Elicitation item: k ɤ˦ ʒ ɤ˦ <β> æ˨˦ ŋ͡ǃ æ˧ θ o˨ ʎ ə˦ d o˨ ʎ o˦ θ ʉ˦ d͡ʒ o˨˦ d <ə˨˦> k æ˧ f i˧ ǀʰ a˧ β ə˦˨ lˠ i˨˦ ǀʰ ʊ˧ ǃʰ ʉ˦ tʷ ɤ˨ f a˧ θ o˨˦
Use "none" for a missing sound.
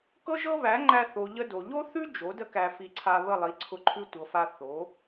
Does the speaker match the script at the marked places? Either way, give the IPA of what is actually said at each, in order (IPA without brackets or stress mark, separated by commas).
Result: β, ə˦